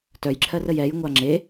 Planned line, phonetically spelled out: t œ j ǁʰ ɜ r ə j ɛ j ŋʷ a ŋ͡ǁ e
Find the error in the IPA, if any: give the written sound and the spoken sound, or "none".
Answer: none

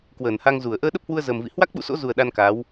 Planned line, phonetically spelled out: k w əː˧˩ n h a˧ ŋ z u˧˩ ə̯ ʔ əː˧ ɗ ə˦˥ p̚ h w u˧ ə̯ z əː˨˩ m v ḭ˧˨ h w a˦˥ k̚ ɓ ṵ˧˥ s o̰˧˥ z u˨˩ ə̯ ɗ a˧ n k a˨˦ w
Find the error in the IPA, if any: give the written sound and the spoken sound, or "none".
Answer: none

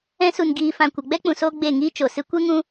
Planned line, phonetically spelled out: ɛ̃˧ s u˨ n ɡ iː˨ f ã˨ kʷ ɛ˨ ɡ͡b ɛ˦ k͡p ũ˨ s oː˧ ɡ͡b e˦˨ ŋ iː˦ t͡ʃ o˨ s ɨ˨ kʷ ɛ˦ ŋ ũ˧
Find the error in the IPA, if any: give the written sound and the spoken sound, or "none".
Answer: ɨ˨ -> ɨ˧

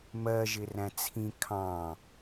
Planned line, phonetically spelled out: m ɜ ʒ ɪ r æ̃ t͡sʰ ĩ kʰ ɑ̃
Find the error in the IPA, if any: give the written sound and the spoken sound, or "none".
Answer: none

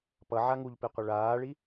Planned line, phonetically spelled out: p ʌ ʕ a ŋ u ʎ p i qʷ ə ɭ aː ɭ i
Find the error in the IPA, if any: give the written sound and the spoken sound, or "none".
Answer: none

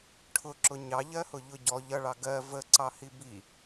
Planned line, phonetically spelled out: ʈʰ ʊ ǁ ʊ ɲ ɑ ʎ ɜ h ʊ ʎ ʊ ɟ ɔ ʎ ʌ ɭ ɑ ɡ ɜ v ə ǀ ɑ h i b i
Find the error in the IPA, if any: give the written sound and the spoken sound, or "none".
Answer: none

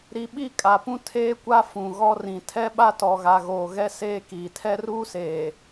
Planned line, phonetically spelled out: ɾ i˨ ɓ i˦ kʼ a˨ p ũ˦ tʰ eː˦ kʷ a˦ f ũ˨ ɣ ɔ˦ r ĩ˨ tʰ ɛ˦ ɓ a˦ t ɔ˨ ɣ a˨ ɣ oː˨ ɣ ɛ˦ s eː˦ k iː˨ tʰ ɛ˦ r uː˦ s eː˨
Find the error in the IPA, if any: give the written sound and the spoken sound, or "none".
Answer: none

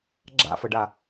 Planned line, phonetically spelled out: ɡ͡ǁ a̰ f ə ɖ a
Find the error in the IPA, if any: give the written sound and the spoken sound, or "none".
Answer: none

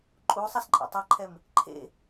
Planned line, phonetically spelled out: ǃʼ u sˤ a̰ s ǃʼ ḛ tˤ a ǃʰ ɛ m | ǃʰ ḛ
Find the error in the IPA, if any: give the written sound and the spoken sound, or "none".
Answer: a̰ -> a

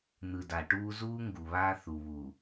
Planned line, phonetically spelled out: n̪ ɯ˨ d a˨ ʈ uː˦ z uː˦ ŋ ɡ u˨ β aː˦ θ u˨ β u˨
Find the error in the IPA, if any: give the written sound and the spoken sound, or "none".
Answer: none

